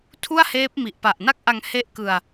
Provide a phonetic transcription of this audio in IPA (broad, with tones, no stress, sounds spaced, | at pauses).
tʰ u˥˩ a̯ h eː˦˥ p̚ m i˨˩ ʔ p a˨˩ ʔ n a˥˩ k̚ ʔ a˧ ŋ h e˥˩ ʔ k ɯ˧ a̯